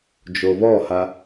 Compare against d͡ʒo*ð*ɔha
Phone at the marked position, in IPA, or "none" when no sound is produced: β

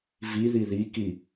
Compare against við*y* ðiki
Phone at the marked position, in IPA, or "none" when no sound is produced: i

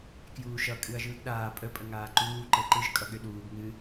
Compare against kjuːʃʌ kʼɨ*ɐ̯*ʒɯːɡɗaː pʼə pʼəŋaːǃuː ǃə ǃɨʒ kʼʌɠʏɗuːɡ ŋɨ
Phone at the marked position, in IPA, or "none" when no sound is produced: ɐ̯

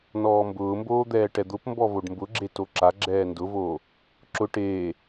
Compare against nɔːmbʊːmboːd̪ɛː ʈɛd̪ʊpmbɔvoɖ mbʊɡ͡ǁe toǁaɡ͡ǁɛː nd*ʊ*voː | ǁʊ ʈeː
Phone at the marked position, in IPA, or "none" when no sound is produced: ʊ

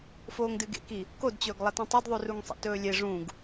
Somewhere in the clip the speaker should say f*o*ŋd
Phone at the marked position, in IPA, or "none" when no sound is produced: oː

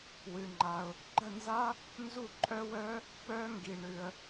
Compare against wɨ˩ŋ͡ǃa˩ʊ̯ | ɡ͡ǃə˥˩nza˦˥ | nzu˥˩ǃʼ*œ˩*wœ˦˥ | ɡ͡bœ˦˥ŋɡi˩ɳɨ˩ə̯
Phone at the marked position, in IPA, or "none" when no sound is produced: œ˦˥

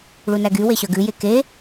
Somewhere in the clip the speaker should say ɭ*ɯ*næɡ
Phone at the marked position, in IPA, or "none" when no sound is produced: u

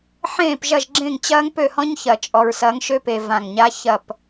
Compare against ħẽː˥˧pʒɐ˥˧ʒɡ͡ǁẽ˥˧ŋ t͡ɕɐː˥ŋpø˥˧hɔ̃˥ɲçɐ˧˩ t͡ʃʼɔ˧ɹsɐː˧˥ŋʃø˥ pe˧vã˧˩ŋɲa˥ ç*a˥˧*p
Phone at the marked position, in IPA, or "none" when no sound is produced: ɐ˥˧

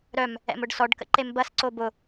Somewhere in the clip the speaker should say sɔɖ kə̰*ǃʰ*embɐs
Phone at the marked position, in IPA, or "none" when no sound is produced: ǃ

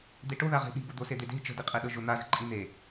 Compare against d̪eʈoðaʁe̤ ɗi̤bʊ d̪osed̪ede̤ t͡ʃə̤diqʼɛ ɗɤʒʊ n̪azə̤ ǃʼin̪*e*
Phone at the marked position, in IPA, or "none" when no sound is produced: e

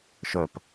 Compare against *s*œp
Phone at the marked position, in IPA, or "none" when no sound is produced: ʃ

